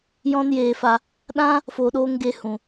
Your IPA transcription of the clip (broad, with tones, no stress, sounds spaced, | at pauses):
j ɔ̃˦ n j eː˧ f a˧ | ɗ ã˦ | f oː˧ ɗ oː˦ ŋ ɡ e˧ h ũ˨